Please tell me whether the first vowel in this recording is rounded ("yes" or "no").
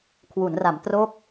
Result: yes